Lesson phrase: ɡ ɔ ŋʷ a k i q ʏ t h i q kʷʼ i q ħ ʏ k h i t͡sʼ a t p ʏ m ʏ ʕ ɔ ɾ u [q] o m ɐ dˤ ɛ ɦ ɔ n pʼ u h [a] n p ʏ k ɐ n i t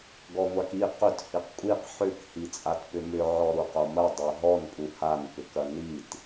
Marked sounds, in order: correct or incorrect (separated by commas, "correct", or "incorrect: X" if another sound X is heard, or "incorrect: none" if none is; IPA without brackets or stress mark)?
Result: correct, correct